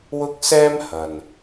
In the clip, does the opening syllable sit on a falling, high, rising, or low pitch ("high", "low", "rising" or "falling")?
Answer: high